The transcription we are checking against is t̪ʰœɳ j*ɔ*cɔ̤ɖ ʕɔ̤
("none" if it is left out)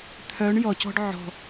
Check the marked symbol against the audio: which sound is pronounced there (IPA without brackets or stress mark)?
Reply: ɔ